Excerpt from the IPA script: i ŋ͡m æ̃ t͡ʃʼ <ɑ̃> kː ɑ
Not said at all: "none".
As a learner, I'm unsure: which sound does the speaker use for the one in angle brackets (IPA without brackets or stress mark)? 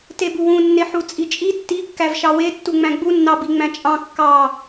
ɑ̃